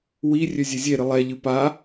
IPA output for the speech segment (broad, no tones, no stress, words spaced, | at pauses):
wi rʲøzʲezʲeɾɨ lˠɛʎɨ pa